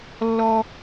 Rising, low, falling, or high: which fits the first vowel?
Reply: high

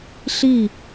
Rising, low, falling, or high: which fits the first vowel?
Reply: falling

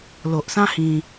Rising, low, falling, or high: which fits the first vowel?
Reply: low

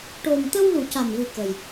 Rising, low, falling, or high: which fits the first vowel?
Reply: low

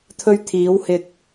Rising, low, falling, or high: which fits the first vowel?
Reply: high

